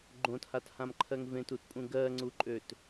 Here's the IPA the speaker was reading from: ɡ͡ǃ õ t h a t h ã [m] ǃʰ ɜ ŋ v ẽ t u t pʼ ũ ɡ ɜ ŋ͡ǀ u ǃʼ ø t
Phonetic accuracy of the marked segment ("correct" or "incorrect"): correct